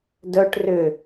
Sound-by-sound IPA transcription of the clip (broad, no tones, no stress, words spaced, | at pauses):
dœʈ rʏ